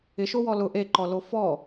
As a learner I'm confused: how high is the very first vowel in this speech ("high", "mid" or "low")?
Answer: high